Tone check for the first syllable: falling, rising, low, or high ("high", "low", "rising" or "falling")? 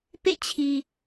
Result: falling